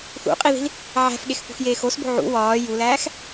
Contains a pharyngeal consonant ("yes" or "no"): yes